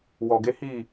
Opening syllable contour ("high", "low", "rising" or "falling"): low